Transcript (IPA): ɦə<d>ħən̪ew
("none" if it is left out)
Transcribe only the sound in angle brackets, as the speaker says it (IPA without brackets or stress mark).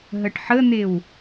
ʈ